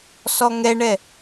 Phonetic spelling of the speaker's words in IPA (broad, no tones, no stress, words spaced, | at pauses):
sɔŋɛɳɛ